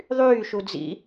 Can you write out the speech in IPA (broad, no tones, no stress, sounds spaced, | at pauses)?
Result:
ðˤ yː ʃ u d͡z ḭ